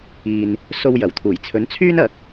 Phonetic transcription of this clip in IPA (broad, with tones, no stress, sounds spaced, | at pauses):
iː˨ n | s o˧ w j ɐ˨˩ w t̪ʰ uː˨˩ j t͡sʰ ɵ˨˥ n t͡sʰ yː˥ n ɐ˨˥ k̚